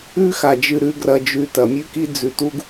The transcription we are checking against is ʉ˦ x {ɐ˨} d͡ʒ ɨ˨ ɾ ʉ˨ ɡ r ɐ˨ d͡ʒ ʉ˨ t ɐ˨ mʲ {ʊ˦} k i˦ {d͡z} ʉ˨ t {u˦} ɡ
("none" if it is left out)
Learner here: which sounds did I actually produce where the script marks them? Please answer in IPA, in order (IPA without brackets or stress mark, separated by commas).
a˨, ʉ˦, d͡z, u˦